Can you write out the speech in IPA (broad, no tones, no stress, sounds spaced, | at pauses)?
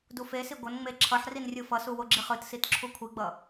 d u f e s i ɡʷ ʌ n ŋ͡m e ǁʰ ʌ ħ r i n rʲ ɯ f ʌ s u w o ɡ͡ǁ i χ ɯ t s i t ǁʰ u kʷʰ i ɡ͡b ʌ